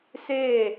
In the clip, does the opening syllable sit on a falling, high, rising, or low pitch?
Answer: falling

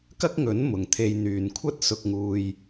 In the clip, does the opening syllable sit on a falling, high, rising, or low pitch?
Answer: high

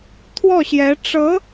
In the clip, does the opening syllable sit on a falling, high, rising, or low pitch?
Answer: falling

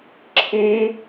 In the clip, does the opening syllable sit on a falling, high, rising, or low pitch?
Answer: high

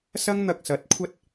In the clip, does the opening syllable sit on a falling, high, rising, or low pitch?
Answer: high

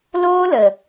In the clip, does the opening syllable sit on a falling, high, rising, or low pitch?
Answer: high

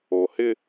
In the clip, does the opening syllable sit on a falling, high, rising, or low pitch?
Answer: low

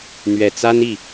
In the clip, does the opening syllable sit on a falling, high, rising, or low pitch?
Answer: low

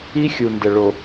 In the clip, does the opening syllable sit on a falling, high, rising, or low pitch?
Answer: high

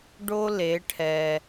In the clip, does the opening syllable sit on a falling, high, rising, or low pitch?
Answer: high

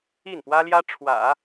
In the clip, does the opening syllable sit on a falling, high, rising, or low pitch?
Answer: falling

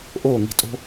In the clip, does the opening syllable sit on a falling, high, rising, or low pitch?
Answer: falling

